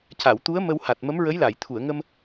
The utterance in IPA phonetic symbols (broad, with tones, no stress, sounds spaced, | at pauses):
c a˨˩˨ w t̪ u˧˥ ə̯ m ə˧ w h a˨˩ t̚ m ə˧˥ m ɹ ə˧˥ j l a˨˩˨ j t̪ʰ u˨˩˨ ə̯ ŋ ə˧ m